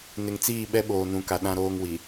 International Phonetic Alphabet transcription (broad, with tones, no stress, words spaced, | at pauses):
nɪ˨ŋt͡siː˦˨ɓɛ˦ ɓoː˨nũ˨˦ka˨ ɗã˦ɾoː˦ŋwi˨